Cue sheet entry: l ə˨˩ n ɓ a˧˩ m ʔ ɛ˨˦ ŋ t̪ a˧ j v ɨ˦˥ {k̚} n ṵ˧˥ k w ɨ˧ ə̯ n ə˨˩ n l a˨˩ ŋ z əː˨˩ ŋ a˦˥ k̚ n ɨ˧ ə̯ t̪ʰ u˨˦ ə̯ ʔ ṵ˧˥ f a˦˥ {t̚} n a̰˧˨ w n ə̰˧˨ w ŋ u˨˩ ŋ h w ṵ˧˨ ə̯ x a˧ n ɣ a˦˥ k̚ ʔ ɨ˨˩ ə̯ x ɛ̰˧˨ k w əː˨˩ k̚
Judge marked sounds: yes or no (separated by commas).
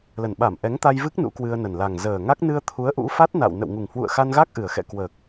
yes, yes